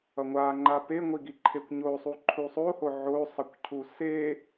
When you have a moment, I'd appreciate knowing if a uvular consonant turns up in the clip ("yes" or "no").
no